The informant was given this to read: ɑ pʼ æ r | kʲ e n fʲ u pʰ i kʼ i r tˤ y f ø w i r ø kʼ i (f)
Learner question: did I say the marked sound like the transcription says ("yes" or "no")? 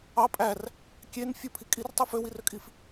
yes